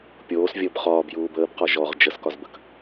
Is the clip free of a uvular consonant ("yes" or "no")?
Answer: no